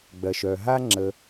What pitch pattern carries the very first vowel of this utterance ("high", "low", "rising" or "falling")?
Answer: low